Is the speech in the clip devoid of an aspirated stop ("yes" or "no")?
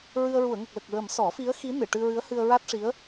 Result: yes